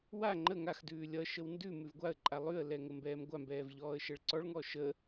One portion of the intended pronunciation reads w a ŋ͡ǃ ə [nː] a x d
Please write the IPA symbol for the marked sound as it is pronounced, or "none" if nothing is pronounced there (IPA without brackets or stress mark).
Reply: ŋ